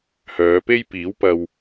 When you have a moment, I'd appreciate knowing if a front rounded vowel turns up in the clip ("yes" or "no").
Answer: yes